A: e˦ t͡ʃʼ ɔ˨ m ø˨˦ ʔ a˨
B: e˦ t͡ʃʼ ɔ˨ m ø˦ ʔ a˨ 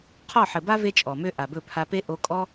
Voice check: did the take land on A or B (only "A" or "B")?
B